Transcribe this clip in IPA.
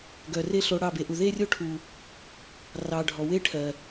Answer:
ɡœ˨re˦ ɬo˧ɽɑ˦˨be˧ʔu˨ ðe˦rʲo˦ʈʰu˨ | rɑ˨ ɖʱɔ˨we˦ ʈʰɜ˨

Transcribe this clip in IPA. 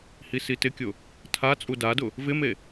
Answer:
hisitɪkʲʊ | tʰa t͡sʼudadʊ | vɪme

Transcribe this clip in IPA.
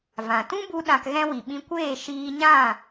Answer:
vã˨ tũ˦bu˧ ɗã˧kɣɛ̃˦ wi˨ɓĩ˧kʷeː˦˨ ʃiː˧ɲã˦˨

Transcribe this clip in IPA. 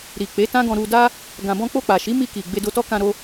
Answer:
ɾi˨k͡pe˨˦ tã˦ɡɔ̃˧ ɾu˧da˦ | ɡã˨bɔ̃˧ k͡po˧k͡pa˨ʃi˨˦ mi˧ki˨ ɡ͡be˧do˧tɔ˦ kã˧ɾo˧

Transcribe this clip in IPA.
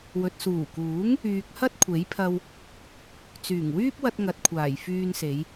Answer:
wɵ˨t̚ suː˨˩kuː˨˥ŋ | yː˨k̚ hɐ˥t̚kʷʰe˨˥jpʰɐ˧w | t͡syː˨˩ŋwyː˥p̚wɐ˧t̚ ŋɐ˨t̚kʷʰaː˨˩j fyː˧nse˨˧j

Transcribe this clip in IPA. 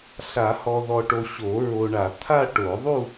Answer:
ɬa˨˩˦hɔ˨ ðɔ˨ʈo˨ ɕo˨˩˦ɹo˨ɳa˨˩˦ t̪ʰa˥˧ ʈo˨˩˦ðˤu˥˧

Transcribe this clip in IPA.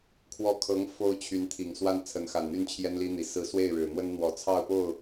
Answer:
kʰwɔ˥˩ kʰɤ˧˥ŋ fo˥ʊ̯t͡ɕʰy˧˥nt̪ʰi˨˩ŋswa˥˩n t͡sʰə˧˥n xa˨˩nn̪y˥˩n t͡ɕʰjɛ˥nli˥n̪i˨˩ sɹ̩˧˥swe˥˩ɪ̯ɻɻ̩˨˩n̪wə˥n n̪wɔ˨˩t͡sʰɑ˥˧ʊ̯po˥˩ʊ̯

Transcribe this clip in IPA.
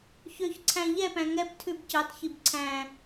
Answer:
çøçǀʰæ̃ ʎɛpæ̃ ŋɛp tʰʉbcɑtçib ǀʰæ̃

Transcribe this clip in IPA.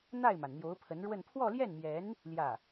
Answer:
n̪a˥˩ɪ̯ma˩n n̪jo˧˥ʊ̯pʰə˧˥nɻwə˥˧n pʰwɔ˥˧ljɛ˥˩nmjɛ˧˥n | ljä˥˩

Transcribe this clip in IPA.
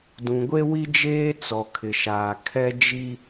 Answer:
dũ˨ɡʷe˦wi˦d͡ʒeː˦ t͡sɔ˨kʰɪ˨ʃaː˨ kʰɛ˦d͡ʒi˦

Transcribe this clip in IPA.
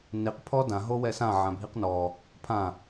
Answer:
niq pʰɔdã ɦowɛsã ʕãbʱiqnɔ | pʰã

